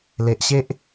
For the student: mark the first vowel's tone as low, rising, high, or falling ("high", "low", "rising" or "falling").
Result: low